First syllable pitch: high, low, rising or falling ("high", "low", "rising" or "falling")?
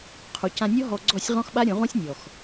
low